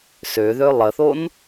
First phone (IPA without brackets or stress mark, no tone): s